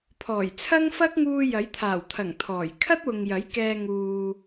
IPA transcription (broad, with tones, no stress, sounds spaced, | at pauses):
pʰ ɔː˨˩ j t͡sʰ ɐ˥ ŋ f ɐ˥ k̚ ŋ uː˧ j ɐ˨˥ j t̪ʰ aː˨˩ w t̪ʰ ɐ˨˩ ŋ t̪ʰ ɔː˨˩ j kʰ ɐ˥ t̚ w ʊ˨ ŋ j ɐ˨˥ j k ɛː˧ ŋ uː˨